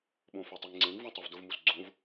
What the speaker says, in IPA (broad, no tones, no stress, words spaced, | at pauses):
ɓõfœtˤiŋŋ͡ǀẽŋ vũtˤovdʊvmus ɡ͡ǀõv